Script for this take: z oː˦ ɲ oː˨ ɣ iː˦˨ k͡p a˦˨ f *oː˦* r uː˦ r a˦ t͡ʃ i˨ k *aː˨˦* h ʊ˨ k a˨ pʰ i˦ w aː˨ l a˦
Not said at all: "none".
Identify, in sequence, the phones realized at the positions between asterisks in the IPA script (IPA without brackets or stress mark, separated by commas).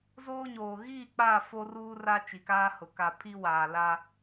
o˦, aː˦